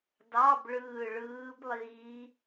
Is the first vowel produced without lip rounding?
yes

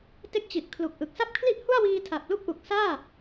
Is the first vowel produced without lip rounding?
yes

